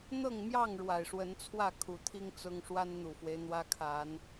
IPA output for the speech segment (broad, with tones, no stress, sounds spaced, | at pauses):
n̪ ɤ˥˨ ŋ m j ɑ˥˨ ŋ ɻ w a˨˩ ɪ̯ ʂ w ə˨˦ n t͡sʰ w ä˥˨ kʰ u˨˩ t̪ʰ i˦ ŋ t͡s ʊ˦ ŋ ʂ w a˦ n n̪ u˨˩ f w e˦ ɪ̯ n̪ w ä˦ kʰ a˨˦ n